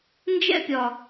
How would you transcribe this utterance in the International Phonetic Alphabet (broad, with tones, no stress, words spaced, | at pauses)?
nd͡ʒɛ̰˦pʲɒ˨